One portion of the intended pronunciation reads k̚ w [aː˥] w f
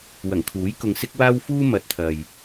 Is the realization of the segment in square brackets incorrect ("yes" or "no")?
no